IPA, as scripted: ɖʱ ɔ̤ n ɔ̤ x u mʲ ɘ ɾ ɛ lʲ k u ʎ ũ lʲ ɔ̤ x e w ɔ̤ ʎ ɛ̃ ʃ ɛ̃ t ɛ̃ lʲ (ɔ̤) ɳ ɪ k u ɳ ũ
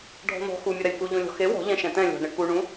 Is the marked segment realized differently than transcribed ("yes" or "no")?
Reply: no